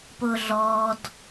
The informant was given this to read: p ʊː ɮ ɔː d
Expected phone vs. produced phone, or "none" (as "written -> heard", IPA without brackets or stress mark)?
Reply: none